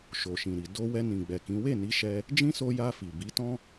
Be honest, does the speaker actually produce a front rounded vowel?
no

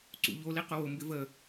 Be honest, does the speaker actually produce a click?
yes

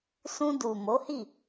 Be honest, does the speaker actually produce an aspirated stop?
no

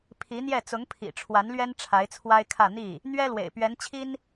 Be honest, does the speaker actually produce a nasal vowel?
no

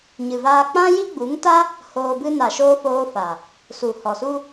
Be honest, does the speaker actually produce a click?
no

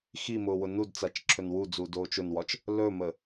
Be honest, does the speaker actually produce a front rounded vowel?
no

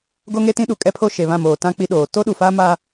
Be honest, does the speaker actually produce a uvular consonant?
no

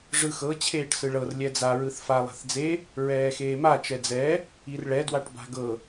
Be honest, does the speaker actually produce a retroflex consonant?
yes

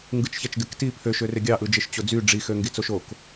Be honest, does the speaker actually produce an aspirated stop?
yes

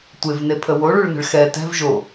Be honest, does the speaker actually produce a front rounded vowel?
no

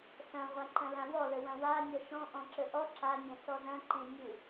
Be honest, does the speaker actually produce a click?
yes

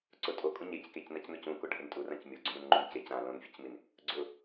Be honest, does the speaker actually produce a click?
yes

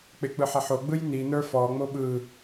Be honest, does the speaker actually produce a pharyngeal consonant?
yes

